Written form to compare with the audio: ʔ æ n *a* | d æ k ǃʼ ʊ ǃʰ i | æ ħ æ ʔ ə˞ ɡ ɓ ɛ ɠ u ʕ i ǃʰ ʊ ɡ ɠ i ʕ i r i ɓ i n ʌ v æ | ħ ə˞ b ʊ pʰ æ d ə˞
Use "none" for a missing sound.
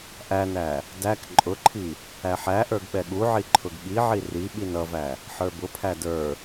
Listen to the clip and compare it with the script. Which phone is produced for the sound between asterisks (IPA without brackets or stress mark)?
æ